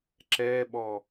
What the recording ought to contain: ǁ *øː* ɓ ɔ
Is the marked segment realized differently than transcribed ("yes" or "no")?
yes